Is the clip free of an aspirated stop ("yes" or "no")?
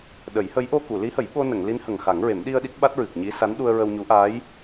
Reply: yes